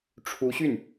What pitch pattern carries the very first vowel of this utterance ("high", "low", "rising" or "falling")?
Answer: rising